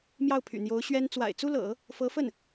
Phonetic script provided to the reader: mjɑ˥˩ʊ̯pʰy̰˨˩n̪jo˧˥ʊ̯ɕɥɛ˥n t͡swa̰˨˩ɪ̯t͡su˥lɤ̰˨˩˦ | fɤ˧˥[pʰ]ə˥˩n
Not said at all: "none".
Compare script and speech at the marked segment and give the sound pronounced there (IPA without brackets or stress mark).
f